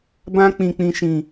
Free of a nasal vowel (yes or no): no